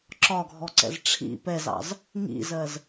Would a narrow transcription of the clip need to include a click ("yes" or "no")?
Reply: yes